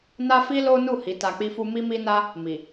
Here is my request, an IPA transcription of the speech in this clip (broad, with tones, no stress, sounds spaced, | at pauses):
n a˦ f i˦ l o˦ n u˦˨ h i˨˦ t a˧ k͡p i˦ f u˦ m i˦ m i˦ n a˦ | m i˨